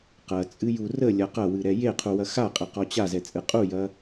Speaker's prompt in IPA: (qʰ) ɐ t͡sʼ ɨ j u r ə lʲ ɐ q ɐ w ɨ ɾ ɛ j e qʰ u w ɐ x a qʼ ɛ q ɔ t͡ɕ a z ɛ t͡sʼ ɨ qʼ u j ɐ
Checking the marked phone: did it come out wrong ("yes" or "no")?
yes